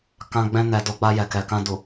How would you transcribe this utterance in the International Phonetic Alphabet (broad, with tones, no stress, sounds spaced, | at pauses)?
k ã˧ ɡ͡b ɛ̃˧ n ɛ˨ d o˨˦ ɡ͡b a˧ j ɛ˨ k ɛ˨ k ã˧ d u˨